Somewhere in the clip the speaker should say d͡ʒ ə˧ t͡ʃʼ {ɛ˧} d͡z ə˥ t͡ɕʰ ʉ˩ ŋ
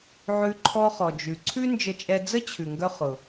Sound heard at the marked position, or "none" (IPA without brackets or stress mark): ɛ˧